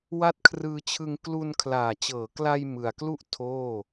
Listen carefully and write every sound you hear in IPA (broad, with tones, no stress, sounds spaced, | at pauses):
w a˦˥ t̚ kʰ r ɯː˧ t͡ɕʰ ɯ˧ ŋ k l u˧ n kʰ l aː˨˩ t͡ɕ ɤː˩˦ k l a˧ j m ɯ˨˩ a̯ k l u˥˩ ʔ tʰ oː˥˩